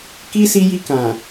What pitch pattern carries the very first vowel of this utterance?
high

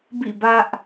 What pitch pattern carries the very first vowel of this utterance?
falling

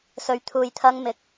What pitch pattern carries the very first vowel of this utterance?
low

